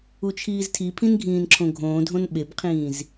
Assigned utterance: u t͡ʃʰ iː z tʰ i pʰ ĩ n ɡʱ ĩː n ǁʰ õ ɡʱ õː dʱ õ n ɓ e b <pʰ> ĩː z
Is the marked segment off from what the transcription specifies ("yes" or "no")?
yes